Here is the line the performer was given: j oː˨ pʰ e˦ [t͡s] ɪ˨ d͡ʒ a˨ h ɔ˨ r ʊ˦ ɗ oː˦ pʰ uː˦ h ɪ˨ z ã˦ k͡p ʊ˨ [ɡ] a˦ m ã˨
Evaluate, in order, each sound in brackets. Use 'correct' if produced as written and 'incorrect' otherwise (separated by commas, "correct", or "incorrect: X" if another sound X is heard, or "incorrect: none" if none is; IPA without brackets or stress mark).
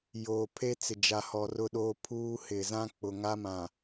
correct, incorrect: ŋ